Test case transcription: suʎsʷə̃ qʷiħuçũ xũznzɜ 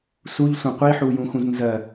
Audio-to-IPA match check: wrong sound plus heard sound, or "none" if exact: ç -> j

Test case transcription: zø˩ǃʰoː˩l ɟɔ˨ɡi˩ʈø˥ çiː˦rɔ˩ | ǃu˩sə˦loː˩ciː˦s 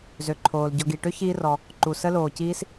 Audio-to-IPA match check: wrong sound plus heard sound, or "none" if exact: none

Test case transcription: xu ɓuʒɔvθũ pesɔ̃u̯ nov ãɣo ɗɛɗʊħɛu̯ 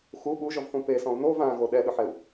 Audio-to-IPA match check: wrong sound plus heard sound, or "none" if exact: none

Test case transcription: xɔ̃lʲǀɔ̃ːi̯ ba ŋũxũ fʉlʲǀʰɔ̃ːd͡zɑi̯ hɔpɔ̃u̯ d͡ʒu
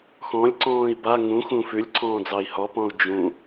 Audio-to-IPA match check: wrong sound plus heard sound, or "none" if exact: u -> ũ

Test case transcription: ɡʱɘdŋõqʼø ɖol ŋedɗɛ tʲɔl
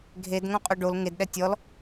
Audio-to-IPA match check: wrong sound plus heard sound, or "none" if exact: ɘ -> e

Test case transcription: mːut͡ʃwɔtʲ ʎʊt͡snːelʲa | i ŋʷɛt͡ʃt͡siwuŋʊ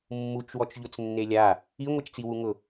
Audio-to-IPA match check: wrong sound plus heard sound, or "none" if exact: tʲ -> t͡ʃ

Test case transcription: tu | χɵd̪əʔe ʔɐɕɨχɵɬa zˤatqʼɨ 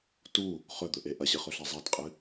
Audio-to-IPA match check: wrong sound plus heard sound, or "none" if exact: ə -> ɵ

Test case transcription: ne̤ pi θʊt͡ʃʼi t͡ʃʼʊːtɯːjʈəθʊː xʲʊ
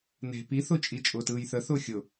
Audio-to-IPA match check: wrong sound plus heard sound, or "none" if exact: ʈ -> θ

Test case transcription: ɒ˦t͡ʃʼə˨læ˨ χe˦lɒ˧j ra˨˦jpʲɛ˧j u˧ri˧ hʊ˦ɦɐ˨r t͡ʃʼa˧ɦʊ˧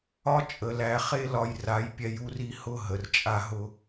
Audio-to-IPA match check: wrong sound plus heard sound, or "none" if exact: ɐ˨ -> ə˨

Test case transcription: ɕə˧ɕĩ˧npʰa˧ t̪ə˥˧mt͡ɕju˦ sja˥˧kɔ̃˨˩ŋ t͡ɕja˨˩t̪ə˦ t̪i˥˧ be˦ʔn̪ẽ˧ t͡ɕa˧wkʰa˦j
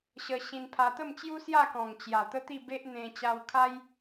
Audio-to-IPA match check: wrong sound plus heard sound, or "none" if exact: none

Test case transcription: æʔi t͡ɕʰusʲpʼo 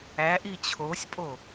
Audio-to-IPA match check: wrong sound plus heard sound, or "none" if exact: u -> o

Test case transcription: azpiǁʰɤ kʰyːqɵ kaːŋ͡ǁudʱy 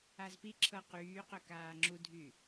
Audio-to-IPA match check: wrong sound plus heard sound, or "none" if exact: kʰ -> q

